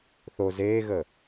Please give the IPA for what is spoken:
θ o z eː ɣ əː

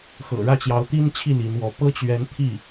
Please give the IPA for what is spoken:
x ɤ̰˨˩ ɻ ä˥˩ t͡ɕ j ɑ˧˥ ʊ̯ t̪ i˥ n t͡ɕʰ i˥˩ l i˧˥ n w ɔ˧˥ p ɤ˥ t͡ɕ ɥ ɛ˧˥ n t̪ʰ i˥˩

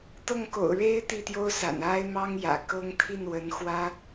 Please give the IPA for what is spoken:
t̪ ɤ˥˩ ŋ k o̰˨˩ ʊ̯ ɻ e˥ ɪ̯ t̪ i˥˩ t̪ j o˥ ʊ̯ s a̰˨˩ n a˥ ɪ̯ m ɑ˥ ŋ j ä̰˨˩ k ɤ˥ ŋ t̪ʰ i˥˩ n w ə˧˥ n x w ä˥

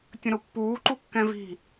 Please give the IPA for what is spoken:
tʲ ə̃ ɾ ʊ pː uː ǃ u kː ɛ̃ v i̤

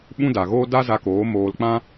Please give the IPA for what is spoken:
ɓ ũ˦ d a˨ ɣ oː˦ d a˦ z a˧ k oː˨˦ m oː˧ l k͡p ã˦

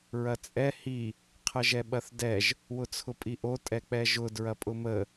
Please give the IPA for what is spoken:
ɹ ɐ t͡sʼ ɛ h i | qʰ ə ʒ ɛ ɓ ɐ θ d ɛ ʒ | w ʊ t͡sʰ ʊ pʼ i ʔ o tʼ ɛ k͡p ɛ ʒ ʊ d ɹ ɐ pʼ ʊ m ə

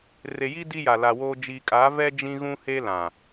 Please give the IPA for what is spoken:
r e˨ j i˦ d i˦ j a˨ l a˨ w oː˦ d͡ʒ iː˨ kʼ aː˨˦ v ɛ˦ d͡ʒ ĩ˦ ɣ ũ˦ h e˦ l ã˨

